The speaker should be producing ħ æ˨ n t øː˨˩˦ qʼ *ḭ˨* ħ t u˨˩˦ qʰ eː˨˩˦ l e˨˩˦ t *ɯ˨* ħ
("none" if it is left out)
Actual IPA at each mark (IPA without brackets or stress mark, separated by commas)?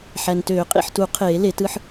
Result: ḭ˨, ɯ˥˧